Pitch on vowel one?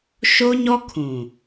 high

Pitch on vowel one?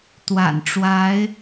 low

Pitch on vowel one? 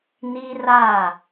high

